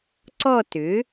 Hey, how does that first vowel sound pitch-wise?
falling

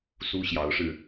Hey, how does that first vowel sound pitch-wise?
high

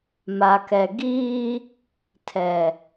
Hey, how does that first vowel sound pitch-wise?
low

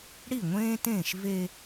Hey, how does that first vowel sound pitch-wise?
falling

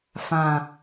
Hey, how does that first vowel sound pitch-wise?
low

